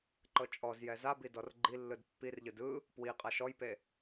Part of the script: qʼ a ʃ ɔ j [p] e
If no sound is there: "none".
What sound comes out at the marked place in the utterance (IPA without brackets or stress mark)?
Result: p